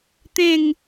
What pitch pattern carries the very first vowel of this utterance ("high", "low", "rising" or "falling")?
falling